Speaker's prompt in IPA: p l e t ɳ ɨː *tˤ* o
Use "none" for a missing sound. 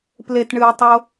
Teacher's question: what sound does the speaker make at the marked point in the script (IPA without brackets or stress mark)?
tˤ